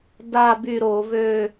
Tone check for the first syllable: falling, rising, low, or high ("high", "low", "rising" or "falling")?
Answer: falling